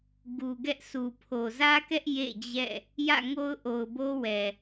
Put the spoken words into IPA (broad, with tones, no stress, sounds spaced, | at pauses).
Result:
ɡ u˨ ɡ ɛ˦ ʔ s u˨ pʰ o˨ z ä˦ k ɛ˦ ʔ j ḛ˦˨ d͡ʑ ɛ̰˦˨ | j ä̰˦˨ ŋ o˦ ʊ̯ ʔ o˨ ʊ̯ b o˦ w ɛ˨